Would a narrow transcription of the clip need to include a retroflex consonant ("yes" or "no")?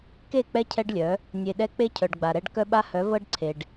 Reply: yes